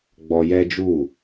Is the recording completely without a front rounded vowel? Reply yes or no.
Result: yes